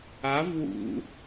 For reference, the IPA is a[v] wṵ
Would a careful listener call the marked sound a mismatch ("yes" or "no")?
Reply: no